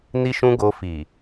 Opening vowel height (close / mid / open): close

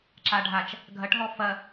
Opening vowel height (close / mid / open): open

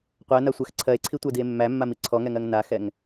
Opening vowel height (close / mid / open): open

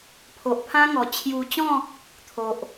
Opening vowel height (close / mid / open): mid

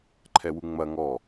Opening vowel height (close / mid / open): mid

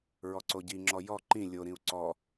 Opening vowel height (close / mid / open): mid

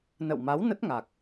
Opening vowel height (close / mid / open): mid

